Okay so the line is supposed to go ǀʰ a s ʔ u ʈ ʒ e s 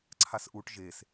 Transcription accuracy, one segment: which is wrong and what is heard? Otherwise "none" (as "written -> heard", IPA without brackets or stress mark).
none